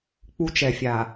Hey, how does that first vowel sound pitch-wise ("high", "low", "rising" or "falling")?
high